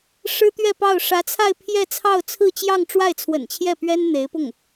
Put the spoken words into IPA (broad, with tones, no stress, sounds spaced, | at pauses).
ʂ ɻ̩˥ t̪ ɥ ɛ˥˧ p ɑ˥˩ ʊ̯ ʂ ä˧˥ t͡sʰ a˥˧ ɪ̯ pʰ j ɛ˥˧ t͡sʰ ɑ˥˧ ʊ̯ t͡sʰ ɹ̩˥˧ t͡ɕ j ɑ˥˧ ŋ ʈ͡ʂ w a˥˩ ɪ̯ t͡sʰ w ə̰˨˩ n t͡ɕʰ j ɛ˥˩ p ɥ ɛ˥ n n̪ e˧˥ ɪ̯ p ʊ˥˩ ŋ